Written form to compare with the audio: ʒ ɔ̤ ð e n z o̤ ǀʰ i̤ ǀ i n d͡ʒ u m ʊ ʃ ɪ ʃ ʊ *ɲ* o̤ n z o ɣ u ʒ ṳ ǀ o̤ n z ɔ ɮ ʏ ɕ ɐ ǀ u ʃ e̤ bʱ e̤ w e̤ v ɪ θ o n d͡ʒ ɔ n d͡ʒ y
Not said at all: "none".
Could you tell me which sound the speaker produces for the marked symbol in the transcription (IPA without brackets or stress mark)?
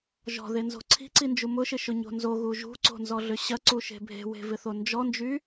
ɲ